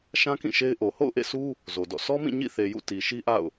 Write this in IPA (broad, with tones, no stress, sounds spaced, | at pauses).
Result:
ʃ ã˦ k ĩ˦˨ ʃ e˦ ɪ̯ ʔ o˨ h o̰˦˨ ʊ̯ ʔ ḛ˦˨ sʰ u˦ | z o˨ d ɔ̰˦˨ sʰ ɔ˦ m ĩ˦˨ ɲ ḭ˦˨ θ e˨ j ṵ˦˨ t i˨ ʃ i˦ ʔ a̰˦˨ ʊ̯